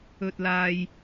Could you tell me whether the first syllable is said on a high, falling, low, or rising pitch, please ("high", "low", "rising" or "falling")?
low